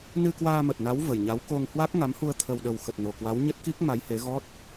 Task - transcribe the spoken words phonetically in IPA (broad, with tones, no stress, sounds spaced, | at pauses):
n ɨ˧ k w aː˧ m ə˨˩ t̚ n a˨˦ w v ə˨˩ j ɲ a˨˦ w k o˧ ŋ h w a˦˥ k̚ ŋ a˨˦ m h u˧ ə̯ t̪ʰ ə˨˩ w ɗ ə˨˩ w x ə˨˩ t̚ n o˨˩ k w a˨˦ w ɲ ə˦˥ t̚ k i˦˥ k̚ m a˨˦ j h e˨˦ ɣ ɔ˦˥ t̚